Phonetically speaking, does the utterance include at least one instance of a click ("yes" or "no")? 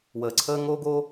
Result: yes